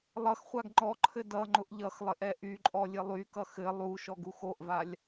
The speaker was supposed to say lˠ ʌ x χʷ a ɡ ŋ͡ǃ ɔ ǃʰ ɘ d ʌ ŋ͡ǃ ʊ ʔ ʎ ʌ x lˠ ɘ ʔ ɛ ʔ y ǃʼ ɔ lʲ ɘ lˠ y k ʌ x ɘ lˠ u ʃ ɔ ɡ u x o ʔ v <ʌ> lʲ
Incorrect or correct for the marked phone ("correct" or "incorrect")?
incorrect